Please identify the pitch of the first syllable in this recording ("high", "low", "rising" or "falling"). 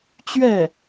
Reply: falling